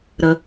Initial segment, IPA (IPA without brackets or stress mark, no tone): ɾ